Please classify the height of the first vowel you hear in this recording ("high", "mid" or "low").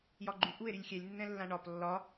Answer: low